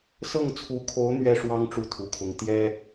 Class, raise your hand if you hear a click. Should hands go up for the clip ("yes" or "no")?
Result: no